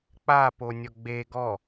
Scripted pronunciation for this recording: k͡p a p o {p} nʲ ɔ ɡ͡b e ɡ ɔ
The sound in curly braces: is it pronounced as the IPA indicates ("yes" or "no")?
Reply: no